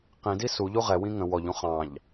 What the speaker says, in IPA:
q ĩ d i s u ʎ u ʁ ɛ w ĩ ŋ ə̃ w ɔ ʎ ũ χ ɑ̃ ʎ

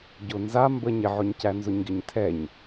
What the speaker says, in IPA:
ɟ ʊ n z a m b ə ɲ ɪ ʕ ʊ ɲ c æ n z ʊ ɲ ɡ ɪ ɲ tʰ ɛ ɲ

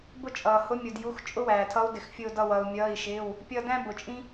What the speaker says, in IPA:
b ʊ˦ t͡ʃʼ ʌː˩ h ʊ˨˦ mʲ ʊ˩ d j u˩˧˩ x t͡ʃʼ ʊ˦ w æː˩ tʰ ʌ˨˦ u̯ d ɪ˩ x fʲ ʊː˧˩ d ʌ˧˩ w ʌː˩ u̯ mʲ ʌː˩˧˩ i̯ ʃ ɪː˩˧˩ w | pʲ ʌ˧˩ d æ̃˦ b ʊ˩ t͡ʃʼ ĩ˦

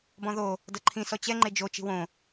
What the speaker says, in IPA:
b ɔ̃ ð o | d ɤ ǃʰ ĩ s ɔ t͡ɕ ɛ ŋ͡ǃ e d͡ʒ o t͡ʃ i̤ w õ

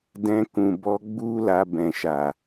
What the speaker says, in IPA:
d ɛ̃˧ k ũ˨ b ɔ˧ ɡ͡b u˦ l a˧ b ɛ̃˨ ʃ a˨

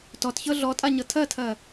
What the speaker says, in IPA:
t ɔ t ç ɤ ɮ ɔ tʼ a ɲ ɤ tʰ ɜ tʰ ɜ

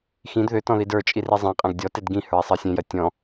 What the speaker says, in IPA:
x ĩ d ð ʏ t ɔ̃ ð i d ə˞ t͡ʃʼ i r i zˤ ẽ qʼ æ̃ ɡ dʲ ɔ t e d ɡ ĩ h ə˞ i̯ sˤ ɜ sʲ ẽ j ɜ tʲ ɔ̃

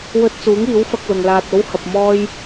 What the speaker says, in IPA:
w ɵ˧ t̚ t͡s uː˨˥ ŋ iː˨˥ w f ɐ˧ k̚ l ʊ˨ ŋ l aː˧ t̚ o˥ w h ɐ˧ p̚ m ɔː˥ j

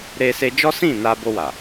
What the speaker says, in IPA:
ɾ e˧ s e˧ d͡ʒ ɔ˦ s ĩ˦˨ n a˧ b o˧ w a˨

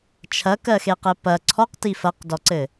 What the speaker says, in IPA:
t͡ʃʰ ɐ k ɜ x e q ɘ p ɐ ǀʰ ɔ q t i f ɐ q d ɔ ǀ ɘ

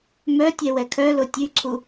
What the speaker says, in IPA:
m œ tʲ ɛ w ɛ kʰ œ l o tʲ ʉ ǀʰ u

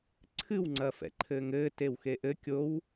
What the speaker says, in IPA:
ǀʰ ɨ w ŋ͡ǀ ɐː f ɛ̰ ǃʰ ɘː ŋ ɘː t e w x e ʔ ɘ kʲ o w

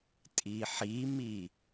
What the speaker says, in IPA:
tʼ i ħ i m i

